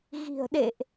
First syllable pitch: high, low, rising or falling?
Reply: low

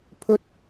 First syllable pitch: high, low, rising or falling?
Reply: high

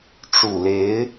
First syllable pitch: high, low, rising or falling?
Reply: low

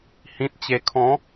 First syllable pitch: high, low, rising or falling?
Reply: low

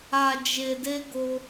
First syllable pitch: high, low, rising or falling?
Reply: low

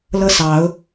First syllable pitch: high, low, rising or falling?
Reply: falling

